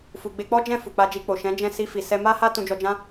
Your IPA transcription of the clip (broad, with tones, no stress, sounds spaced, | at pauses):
f u˨ ɡ͡b e˧ k͡p ɔ˦ d͡ʒ ɛ̃˦˨ f u˨ k͡p a˧ d͡ʒ i˧ k͡p o˨ ʃ ɛ̃˨˦ d͡ʒ ɛ̃˦˨ s i˧ f i˨ s ɛ˧ m a˦ h a˦ t ũ˧ d͡ʒ ɔ˧ d͡ʒ ã˦